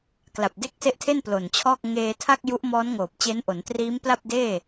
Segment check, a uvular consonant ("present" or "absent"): absent